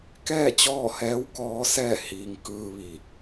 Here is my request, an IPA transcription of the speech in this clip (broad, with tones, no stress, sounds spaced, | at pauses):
k ɛː˥˨ t͡ɕ ɔː˥˨ h ɛː˧˥ w k ɔː˧˥ s ɛː˥˨ h iː˧ ŋ k ɯː˧ ʋ iː˧˩ k̚